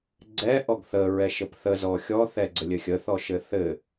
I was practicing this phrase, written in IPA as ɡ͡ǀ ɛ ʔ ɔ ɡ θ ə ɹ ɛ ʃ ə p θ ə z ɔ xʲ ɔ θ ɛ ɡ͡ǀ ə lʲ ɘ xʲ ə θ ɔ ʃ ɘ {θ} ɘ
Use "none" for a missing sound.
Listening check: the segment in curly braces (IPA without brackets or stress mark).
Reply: θ